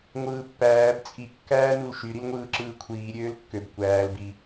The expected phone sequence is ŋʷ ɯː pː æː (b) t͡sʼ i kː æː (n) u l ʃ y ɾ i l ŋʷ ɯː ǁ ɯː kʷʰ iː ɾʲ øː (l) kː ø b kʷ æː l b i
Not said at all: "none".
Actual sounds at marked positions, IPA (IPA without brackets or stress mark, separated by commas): b, n, l